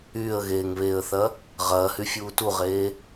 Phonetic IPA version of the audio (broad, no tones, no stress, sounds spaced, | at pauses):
yː ə̯ ɣ eː ŋ β eː ə̯ θ ɐ | ʁ ɐː h y fʲ uː t u ʁ eː